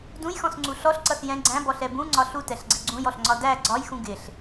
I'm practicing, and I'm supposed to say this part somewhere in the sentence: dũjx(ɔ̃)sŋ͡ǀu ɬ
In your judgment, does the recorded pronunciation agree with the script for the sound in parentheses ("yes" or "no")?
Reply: yes